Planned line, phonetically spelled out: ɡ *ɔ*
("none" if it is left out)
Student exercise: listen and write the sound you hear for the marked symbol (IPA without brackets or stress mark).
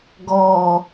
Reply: ɔ